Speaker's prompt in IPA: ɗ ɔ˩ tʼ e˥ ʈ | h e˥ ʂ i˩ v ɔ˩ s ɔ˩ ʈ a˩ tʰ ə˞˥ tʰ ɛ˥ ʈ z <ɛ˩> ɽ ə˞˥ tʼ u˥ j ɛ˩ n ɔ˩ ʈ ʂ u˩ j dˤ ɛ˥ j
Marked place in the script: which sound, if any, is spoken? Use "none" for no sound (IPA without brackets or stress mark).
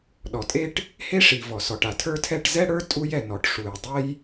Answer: ɛ˥